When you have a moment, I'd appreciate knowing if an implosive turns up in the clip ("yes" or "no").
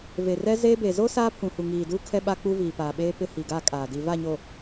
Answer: yes